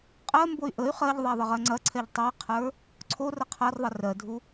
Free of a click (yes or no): no